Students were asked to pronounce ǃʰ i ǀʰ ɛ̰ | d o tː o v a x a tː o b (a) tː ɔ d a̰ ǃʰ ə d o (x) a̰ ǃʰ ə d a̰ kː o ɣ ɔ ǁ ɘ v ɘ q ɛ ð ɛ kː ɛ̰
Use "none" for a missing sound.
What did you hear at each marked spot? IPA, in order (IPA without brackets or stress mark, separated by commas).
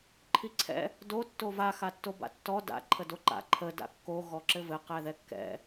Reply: a̰, ǃ